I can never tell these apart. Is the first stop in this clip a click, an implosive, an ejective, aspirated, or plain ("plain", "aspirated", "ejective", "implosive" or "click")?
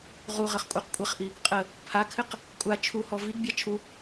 ejective